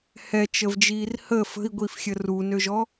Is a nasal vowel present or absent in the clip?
absent